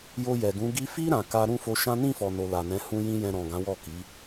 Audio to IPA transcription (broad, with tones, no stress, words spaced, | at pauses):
jo˧jɛ˨ɡũ˨˦ ɡi˧fi˦ ɾã˧ka˦ ɾũ˦˨fo˧ʃã˦ nĩ˦˨fɔ˨no˨ la˨nɛ̃˨˦ hũ˧jĩ˧ jɛ̃˧ɾɔ̃˨ ɡã˨˦wɔ˦˨ ki˨˦